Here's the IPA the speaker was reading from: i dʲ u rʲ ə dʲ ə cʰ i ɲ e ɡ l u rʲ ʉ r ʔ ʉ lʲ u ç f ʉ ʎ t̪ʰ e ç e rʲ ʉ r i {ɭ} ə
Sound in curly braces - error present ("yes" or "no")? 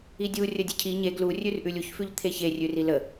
yes